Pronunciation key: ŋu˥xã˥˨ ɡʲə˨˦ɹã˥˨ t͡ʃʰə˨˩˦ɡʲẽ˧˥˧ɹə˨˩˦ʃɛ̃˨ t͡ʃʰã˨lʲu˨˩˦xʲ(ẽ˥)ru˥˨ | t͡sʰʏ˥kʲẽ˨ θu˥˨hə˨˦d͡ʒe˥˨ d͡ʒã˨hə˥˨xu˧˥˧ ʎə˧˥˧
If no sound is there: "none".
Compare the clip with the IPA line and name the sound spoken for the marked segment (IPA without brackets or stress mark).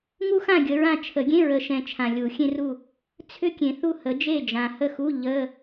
ẽ˥